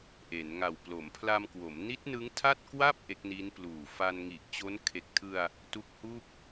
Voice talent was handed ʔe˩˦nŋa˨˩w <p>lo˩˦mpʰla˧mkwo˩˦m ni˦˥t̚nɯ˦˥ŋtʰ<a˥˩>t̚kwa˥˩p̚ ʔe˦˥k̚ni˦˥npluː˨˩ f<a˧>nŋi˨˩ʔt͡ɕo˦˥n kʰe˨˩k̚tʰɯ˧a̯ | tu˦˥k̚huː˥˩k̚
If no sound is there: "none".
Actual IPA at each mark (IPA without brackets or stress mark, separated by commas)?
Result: p, a˥˩, a˧